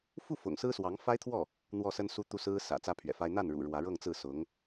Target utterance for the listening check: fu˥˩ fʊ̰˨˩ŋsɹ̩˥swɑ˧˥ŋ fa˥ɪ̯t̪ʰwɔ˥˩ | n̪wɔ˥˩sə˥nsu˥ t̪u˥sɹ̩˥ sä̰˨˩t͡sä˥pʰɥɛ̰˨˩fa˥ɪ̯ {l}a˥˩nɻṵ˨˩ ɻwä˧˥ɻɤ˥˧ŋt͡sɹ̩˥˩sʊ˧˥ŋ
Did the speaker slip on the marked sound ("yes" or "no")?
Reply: yes